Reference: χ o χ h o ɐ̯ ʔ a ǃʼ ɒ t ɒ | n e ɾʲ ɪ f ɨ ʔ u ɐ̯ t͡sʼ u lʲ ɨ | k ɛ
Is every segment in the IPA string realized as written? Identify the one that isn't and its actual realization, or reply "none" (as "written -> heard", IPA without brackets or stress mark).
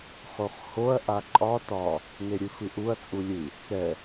ɪ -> ɨ